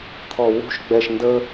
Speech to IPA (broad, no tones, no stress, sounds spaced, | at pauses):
t̪ʰ ɔ w ṳ ʃ ɡ͡b ɛ ʃ n d ə